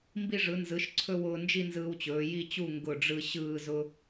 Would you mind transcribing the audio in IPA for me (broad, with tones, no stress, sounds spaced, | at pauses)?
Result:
m b i˧ ʐ ɯ˩˧ n z ɯ˩˧ ʃ ǀʰ ɵ˧ w ʊː˧ n d͡ʒ i˥˧ n z ɯː˧ w t͡ɕ ɵː˩˧ j i˥˧ t͡ɕ u˥˧ ŋ ɡ ʊ˧˩ ɖ͡ʐ ɯ˧ ɕ ɯː˥˧ z ʊ˥